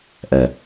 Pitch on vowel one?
low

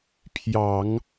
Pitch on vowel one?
low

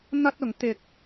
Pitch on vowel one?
high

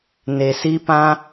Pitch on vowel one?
low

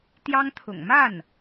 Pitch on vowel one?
high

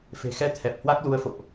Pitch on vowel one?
low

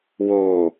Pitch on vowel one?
low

